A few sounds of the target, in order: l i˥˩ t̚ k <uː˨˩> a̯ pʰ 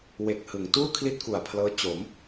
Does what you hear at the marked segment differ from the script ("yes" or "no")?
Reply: yes